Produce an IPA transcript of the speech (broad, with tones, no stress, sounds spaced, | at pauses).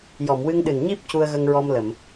j ɔ˨˩˨ m w ɨ˧ ŋ ɗ ɨ˨˩ n ɲ i˦˥ p̚ c u˧ ə̯ ɣ ə˧ ŋ ɹ ɔ˧ m l ə˨˩˨ m